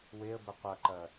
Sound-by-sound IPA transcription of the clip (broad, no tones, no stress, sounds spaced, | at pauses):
w e ə̯ b ə qʷ ɐ ǃ ɐ